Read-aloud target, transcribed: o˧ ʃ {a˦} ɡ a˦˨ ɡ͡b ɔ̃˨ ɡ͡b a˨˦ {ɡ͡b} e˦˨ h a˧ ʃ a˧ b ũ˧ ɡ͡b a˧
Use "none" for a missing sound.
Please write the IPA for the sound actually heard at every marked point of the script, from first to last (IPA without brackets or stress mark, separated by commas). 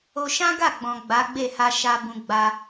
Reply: ã˦, ɡ͡b